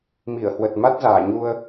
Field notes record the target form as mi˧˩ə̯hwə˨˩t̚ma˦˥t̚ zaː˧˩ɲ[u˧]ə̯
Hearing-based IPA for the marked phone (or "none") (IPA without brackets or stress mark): u˧